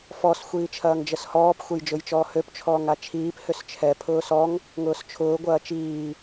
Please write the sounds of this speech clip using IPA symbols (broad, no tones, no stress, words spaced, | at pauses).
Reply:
fɔs xʷiːt͡ʃʰɐːŋd͡ʒəshɔːp xʷejd͡ʒʊjt͡ʃɔːhøp t͡ʃʰɔːŋat͡ʃʰiːp hʏst͡ʃʰɛ pʰʊːsɔŋ | ŋʊːst͡ʃʰʊː ɡʷɐːt͡ʃiː